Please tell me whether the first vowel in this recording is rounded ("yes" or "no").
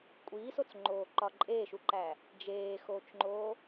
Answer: no